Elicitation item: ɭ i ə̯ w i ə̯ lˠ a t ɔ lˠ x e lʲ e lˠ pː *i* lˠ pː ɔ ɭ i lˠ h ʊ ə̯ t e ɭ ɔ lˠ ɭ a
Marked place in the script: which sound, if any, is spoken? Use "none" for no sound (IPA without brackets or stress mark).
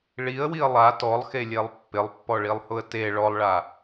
ɪ